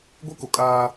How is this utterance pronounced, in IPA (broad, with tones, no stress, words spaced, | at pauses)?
ɡʷe˦ko˨kʼaː˦